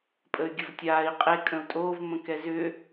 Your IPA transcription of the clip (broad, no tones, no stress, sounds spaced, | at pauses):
pʼ ə y̯ ɡʲ ə v tʲ aː i̯ qʼ e kʼ ə̃ u̯ tʼ oː v m ə̃ k ɛ z ʏ